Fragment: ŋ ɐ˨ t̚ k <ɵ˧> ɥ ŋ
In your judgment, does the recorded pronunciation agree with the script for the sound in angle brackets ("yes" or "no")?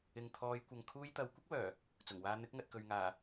no